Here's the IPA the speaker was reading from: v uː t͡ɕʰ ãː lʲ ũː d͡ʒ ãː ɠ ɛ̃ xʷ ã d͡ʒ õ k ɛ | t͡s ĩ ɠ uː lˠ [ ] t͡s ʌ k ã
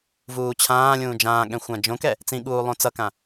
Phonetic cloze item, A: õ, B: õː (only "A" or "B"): A